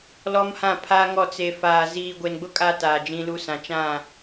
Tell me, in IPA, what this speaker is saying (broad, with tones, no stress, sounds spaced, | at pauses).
l ɔ˦ m h ã˦˨ pʰ a˦ ŋ ɔ˦˨ t͡s e˨ f aː˨ z iː˨ ɡʷ e˨ n ɡ͡b ʊ˦ kʼ a˦ t aː˨ d͡ʒ ĩ˦ l u˦ s ã˨ t͡ʃ ã˦˨